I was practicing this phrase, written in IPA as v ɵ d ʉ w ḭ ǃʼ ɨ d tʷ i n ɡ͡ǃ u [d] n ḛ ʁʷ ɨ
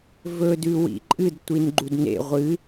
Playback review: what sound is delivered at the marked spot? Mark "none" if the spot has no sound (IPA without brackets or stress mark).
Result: d